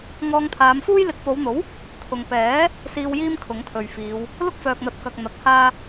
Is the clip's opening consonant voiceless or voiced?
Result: voiced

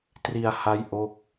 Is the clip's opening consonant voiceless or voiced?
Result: voiceless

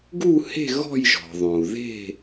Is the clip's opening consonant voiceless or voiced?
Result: voiced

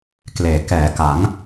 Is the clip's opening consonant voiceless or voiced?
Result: voiceless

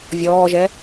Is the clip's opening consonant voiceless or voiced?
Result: voiced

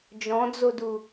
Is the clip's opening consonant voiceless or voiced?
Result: voiced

